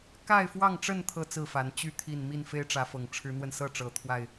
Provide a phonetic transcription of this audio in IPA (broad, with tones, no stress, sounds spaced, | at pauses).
k a˥˨ ɪ̯ f w ɑ˥˨ ŋ ʈ͡ʂ ə˥˨ n t̪ʰ ɤ˥˨ t͡s ɹ̩˥˨ f a˨˦ n t͡ɕ y˥˨ t̪ʰ i˥˨ n m i˥˨ n f e˦ ɪ̯ ʈ͡ʂ ä˨˦ f ɤ˨˩ ŋ ʈ͡ʂʰ ɻ̩˨˦ n̪ w ə˧ n s ɤ˥˨ ʈ͡ʂ ɤ˨˩ t̪ʰ w a˥˨ ɪ̯